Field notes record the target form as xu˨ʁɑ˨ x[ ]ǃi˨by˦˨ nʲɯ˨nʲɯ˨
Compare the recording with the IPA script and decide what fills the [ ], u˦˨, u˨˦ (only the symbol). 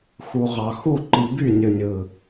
u˦˨